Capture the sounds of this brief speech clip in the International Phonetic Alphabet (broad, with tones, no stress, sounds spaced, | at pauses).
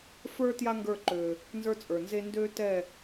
f ə˞˦ t j a˦ ŋ ɡ ə˞˦˨ ǃ ø˨ | n z ə˞˦ t͡sʼ ə˞˨ n z e˦ n d ø˦ t ɛ˦˨